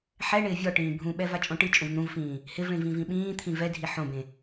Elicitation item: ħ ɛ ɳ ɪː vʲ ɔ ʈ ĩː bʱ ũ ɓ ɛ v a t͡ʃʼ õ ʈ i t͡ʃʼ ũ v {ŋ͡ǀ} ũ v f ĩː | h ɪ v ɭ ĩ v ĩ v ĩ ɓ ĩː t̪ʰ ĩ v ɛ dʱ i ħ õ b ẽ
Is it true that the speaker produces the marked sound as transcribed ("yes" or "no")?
no